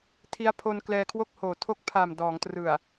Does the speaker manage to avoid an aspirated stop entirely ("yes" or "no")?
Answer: no